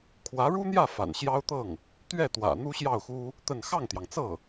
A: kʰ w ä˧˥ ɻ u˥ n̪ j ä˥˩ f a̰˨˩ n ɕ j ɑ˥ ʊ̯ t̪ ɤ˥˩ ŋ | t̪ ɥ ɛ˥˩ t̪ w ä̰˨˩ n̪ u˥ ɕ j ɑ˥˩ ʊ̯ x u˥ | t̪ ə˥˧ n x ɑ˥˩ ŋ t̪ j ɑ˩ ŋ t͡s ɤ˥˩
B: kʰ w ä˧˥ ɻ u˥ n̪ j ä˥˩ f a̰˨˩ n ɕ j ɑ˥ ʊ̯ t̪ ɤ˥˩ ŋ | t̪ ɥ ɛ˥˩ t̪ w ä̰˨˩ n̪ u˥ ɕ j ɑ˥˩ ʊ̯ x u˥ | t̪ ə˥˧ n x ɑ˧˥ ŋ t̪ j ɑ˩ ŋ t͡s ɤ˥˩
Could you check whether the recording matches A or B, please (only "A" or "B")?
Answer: A